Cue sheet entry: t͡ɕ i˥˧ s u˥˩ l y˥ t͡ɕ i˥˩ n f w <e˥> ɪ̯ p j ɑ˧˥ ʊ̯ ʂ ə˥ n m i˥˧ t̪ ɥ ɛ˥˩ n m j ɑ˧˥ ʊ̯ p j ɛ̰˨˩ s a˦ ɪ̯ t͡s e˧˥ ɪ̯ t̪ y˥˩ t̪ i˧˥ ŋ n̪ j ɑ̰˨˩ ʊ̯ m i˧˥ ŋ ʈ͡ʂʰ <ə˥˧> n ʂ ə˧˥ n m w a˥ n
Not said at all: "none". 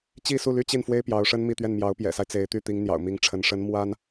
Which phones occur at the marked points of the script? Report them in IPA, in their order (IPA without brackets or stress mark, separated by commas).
e˥, ə˧˥